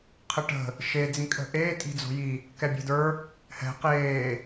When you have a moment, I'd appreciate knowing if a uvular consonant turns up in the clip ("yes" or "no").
yes